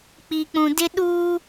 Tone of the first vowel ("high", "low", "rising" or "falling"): low